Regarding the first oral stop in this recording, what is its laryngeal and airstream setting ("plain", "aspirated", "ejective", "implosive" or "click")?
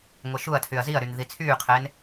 aspirated